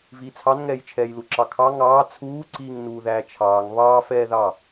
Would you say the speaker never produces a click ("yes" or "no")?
no